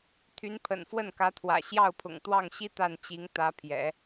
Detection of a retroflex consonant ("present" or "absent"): absent